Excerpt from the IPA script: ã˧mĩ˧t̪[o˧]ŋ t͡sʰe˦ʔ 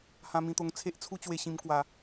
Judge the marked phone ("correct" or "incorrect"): correct